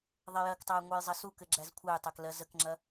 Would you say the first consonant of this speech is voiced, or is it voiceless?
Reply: voiced